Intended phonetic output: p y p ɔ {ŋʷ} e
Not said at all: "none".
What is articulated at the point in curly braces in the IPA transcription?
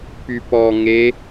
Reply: ŋ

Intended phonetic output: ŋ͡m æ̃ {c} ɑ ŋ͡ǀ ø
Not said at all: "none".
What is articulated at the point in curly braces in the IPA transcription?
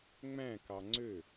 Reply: k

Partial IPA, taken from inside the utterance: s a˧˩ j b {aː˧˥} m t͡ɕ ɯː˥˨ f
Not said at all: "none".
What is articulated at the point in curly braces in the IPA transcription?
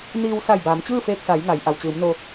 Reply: aː˩˧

